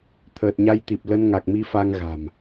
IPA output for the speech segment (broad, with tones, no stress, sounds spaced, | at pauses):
t̪ʰ əː˨˩ t̚ ɲ a˧ j t̪ i˨˩ p̚ l ə˧ n ŋ a˨˩ k̚ m i˧ f a˧ ŋ ɣ a̤˨˩ m